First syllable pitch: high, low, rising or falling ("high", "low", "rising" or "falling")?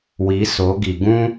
rising